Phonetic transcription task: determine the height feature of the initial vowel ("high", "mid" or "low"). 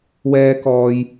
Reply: mid